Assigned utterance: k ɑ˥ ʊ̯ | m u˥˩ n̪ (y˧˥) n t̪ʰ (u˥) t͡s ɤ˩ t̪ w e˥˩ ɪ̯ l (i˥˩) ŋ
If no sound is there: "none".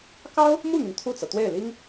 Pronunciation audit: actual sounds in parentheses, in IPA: y˩, u˥˩, i˥

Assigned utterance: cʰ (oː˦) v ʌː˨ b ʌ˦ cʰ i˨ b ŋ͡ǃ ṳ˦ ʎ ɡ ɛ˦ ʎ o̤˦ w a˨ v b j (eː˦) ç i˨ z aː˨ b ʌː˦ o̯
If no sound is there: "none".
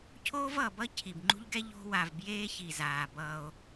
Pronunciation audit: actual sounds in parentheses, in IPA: oː˦, eː˦

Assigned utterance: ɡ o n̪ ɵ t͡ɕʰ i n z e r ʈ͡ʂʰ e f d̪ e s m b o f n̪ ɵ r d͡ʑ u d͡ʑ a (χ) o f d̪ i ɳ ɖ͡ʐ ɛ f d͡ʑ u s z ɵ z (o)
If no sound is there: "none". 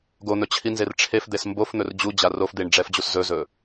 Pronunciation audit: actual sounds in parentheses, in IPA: r, ɵ

